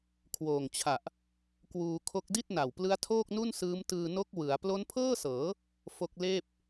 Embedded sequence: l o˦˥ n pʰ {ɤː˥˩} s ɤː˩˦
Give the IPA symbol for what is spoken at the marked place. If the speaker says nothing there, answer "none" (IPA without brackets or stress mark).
ɤː˥˩